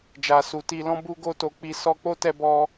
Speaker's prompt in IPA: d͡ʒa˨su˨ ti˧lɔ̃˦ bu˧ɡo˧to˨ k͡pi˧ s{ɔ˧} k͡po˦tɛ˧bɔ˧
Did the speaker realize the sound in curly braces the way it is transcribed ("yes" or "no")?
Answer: yes